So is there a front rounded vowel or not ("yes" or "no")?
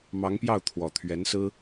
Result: no